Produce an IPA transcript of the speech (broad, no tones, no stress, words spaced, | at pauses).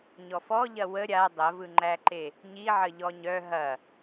ɲɔfɔʎɐ wə ɾʲa dˤɐvɯŋ͡ǃæǃe | ɲiʕə ʎɔɲœ ɦɐ